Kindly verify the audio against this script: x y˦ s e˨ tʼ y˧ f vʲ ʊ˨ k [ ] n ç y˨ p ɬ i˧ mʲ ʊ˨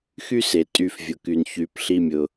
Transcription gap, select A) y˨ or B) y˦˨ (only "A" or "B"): A